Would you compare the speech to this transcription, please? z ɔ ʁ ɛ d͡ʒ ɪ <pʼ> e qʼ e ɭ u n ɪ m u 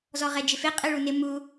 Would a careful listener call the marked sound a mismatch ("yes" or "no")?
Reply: yes